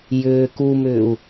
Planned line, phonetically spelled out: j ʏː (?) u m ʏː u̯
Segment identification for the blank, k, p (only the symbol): k